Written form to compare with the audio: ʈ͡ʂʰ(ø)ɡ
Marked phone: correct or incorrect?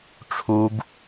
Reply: incorrect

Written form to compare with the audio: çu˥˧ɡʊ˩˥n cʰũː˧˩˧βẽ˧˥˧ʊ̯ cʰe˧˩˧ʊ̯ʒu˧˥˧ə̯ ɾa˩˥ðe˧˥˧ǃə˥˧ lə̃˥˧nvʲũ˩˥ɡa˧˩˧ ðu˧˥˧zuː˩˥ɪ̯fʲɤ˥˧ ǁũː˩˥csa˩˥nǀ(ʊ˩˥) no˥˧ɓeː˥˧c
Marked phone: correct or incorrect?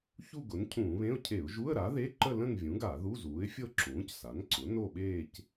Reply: correct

